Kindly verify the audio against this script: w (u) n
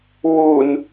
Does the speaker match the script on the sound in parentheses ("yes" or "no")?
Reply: yes